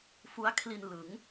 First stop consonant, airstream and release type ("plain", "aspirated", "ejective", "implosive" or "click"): aspirated